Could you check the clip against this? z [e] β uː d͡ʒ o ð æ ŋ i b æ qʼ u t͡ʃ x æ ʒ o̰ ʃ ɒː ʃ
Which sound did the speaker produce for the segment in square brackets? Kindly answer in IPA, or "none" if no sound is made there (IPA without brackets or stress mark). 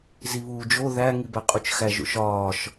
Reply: i